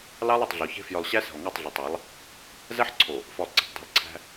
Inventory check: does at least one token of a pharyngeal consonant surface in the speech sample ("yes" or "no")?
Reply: yes